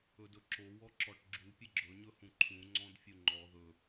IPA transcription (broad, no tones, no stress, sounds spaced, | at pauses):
ɵ d ɵ ǁ o w ɔ ǁ ɔ ʈ ɡ͡ǁ u pʲ ɘ ɡ͡ǁ ɵ ɲ ɵ h ũ ǃʰ ũ ŋ͡ǀ ɔ̃ d fʲ u ŋ͡ǃ ɔ ð ɵ